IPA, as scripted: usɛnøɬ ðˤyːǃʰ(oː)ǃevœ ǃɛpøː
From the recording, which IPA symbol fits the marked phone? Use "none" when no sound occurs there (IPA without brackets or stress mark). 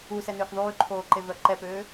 oː